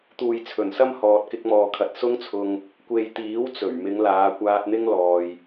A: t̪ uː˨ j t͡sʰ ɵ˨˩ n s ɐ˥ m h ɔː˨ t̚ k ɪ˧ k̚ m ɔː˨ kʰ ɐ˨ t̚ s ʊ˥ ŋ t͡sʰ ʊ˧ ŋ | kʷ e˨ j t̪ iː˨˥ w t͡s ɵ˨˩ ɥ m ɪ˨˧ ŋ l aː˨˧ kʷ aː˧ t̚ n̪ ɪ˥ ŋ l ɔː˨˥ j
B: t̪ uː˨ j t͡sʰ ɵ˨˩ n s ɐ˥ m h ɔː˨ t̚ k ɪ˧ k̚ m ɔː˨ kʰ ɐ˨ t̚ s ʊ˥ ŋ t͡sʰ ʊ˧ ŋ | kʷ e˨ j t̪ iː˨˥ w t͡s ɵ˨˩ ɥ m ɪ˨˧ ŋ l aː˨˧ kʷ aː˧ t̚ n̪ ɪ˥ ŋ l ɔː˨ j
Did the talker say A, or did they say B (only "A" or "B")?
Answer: B